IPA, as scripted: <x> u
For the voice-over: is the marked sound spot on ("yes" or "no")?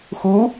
yes